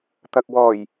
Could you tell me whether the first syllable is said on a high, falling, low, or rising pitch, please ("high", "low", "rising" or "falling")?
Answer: low